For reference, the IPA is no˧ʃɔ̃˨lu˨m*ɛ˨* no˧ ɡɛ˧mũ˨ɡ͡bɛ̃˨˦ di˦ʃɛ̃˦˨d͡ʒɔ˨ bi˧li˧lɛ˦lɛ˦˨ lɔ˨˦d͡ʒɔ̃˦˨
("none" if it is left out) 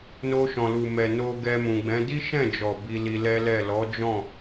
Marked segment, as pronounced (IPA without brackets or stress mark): ɛ˨